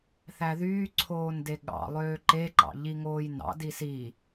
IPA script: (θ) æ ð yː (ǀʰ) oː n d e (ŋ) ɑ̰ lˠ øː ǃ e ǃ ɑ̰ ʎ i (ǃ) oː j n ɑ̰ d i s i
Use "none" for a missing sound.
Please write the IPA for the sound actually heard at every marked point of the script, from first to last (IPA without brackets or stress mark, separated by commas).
θ, ǀʰ, ɠ, ŋ